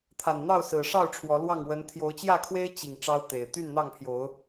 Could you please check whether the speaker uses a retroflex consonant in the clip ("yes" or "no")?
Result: yes